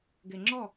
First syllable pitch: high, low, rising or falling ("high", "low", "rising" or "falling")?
low